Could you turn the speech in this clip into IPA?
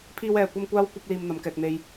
pʰ iː˥ w ɛː˧ kʷ ɐ˥ m kʷ aː˥ w kʷ ɐ˥ p̚ l iː˧ m n̪ ɐ˨˧ m k ɛː˨ k̚ n̪ e˨ j

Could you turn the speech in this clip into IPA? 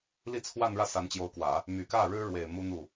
l i˥˧ t͡sʰ w a˥˧ n ɻ ä˥˩ s a˧˥ n t͡ɕ j o˧˥ ʊ̯ k w ä˨˩˦ | m y˨˩ k ä˥˩ ɻ ɻ̩˥ ɻ w e˨˩ ɪ̯ m u˥ n̪ u˥˩

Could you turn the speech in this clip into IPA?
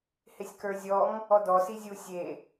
h ɪ sʲ k ə˞ zʲ ɔ ŋ | ɔ d ɔ s i zʲ u sʲ e

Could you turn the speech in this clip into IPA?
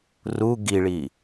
r u ɡ i ɭ i

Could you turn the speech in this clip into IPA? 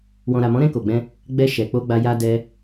w ɔ̃˨ ɾ a˨ m ɔ̃˨˦ ɾ ɛ̃˧ k o˨ ɡ͡b ɛ̃˧ | ɡ͡b ɛ˧ ʃ ɛ˨ k͡p o˧ ɡ͡b a˧ j a˧ d ɛ˧

